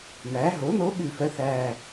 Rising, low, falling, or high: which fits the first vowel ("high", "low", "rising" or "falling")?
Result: rising